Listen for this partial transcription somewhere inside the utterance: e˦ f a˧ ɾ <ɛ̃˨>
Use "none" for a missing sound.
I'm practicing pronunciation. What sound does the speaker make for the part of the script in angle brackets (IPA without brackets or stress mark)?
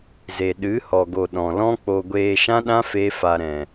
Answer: ɛ̃˨